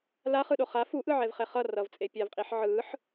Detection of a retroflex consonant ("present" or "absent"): absent